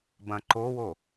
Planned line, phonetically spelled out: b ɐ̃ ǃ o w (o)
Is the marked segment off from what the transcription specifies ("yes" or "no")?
no